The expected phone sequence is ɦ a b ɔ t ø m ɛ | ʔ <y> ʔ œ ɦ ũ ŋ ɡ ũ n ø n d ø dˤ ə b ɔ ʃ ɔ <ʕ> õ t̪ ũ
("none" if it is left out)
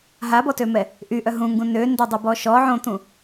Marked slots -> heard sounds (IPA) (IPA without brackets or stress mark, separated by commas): y, ʕ